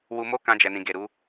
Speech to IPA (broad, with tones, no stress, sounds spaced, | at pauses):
w u˧ m o˦ k ã˧ d͡ʒ ɛ˨ n ĩ˨ ɡ e˨ ɾ u˨˦